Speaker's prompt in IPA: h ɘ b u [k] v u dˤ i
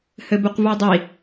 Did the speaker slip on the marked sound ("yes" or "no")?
yes